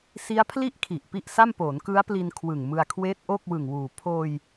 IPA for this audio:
s i˦˥ a̯ pʰ l i˥˩ ʔ kʰ i˨˩ ʔ p i˥˩ ʔ s a˥˩ m p oː˩˦ n k ɯ˦˥ a̯ p l i˧ n kʰ w ɯ˨˩ ŋ m ɯ˧ a̯ kʰ w eː˦˥ t̚ ʔ o˥˩ k̚ w ɯ˨˩ ŋ w uː˨˩ pʰ oː˧ j

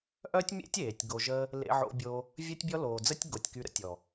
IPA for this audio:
ʔ œ˦ tʲ mʲ ḛ˦ tʲ eː˨ tʲ ɡ o˧ ʒ ə˦ | l ḛ˧ ʕ o̰˧ bʲ o˧ | vʲ œ˦ tʲ bʲ ɔ˦ l oː˨ d͡z ə˦ tʲ ɡ o˨ tʲ k y˧ ɾ ə̰˦ tʲ ɔ˨

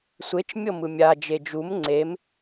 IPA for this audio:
sʷ e t͡ʃ mʲ ɤ m ɯ mʲ a d͡ʒ e d͡ʒ u m ŋ͡ǀ e m

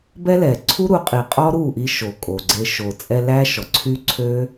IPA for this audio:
b ɛ˦ l ɛ˨ ǀʰ u˦ ɾ u˨˦ qʼ i˨ qʼ ɔ˦ ɾ u˦˨ ʔ i˧ ʃ o˨ kʼ o˨ ɡ͡ǀ e˧ ʃ o˨ t͡sʼ ɛ˧ l æ˦ ʃ ɔ˨ ǀʰ y˦ ǀʰ ø˦

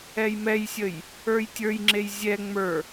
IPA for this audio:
ɛ j m ɛ j sʲ ə j | ə˞ j tʲ ə˞ j ŋ͡ǁ e j zʲ ɛ ŋ͡m ə˞

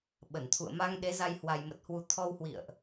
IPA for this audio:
ɓ ə˧˩ n t̪ʰ ṵ˧˨ ə̯ m a˧ ŋ ɗ e˨˦ z a˧ j h w a˨˩ j m ə˨˩ t̚ h w u˨˩ t̪ʰ ɔ˧ w h w ḭ˧˨ ə̯ ʔ

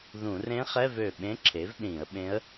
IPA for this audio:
ð ũ˧˩˧ r ẽ˧˥ χ ɛ˧˥˧ v ø˧˩ ɓ ẽ˧˥ ǁʰ e˩˥ v ɗ ĩ˧˩˧ ə̯ ɓ ẽ˧˥ ə̯

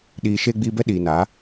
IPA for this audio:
ɗ iː˨ ʃ eː˧ ɡ͡b iː˧ b ɛ˦ ɗ iː˨ n a˨˦

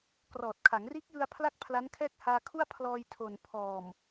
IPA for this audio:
k r ɔː˨˩ t̚ kʰ a˩˦ ŋ r iː˦˥ k̚ j ɯ˧ a̯ pʰ l a˥˩ k̚ pʰ l a˦˥ n kʰ ɛː˥˩ k̚ h aː˧ kʰ u˥˩ a̯ pʰ l ɔː˧ j tʰ o˨˩ n pʰ ɔː˨˩ m

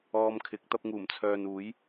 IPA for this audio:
ɔː˧ m kʰ ɪ˨˥ k̚ t̪ ɐ˧ p̚ ŋ uː˨˩ m t͡sʰ œː˨ n uː˨˥ j

